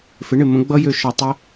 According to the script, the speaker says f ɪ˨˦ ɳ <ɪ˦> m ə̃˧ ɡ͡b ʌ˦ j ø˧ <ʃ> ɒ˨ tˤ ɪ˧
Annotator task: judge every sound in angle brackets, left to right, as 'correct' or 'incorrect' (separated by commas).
incorrect, correct